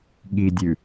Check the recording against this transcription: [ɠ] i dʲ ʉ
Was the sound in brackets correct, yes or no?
yes